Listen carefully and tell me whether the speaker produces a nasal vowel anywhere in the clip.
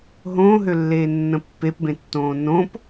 yes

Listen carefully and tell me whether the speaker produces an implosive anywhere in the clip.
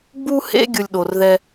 yes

